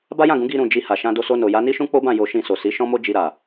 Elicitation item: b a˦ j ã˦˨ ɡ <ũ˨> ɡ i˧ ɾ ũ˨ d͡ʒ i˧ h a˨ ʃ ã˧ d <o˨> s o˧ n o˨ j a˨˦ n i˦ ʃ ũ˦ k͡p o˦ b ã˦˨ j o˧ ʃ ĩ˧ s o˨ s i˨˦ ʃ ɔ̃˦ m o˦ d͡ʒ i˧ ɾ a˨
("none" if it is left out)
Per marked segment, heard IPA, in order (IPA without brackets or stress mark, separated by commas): ũ˨˦, o˧